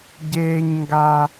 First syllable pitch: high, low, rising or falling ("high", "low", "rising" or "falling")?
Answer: high